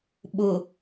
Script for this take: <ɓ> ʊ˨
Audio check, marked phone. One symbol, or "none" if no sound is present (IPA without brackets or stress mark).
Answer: ɓ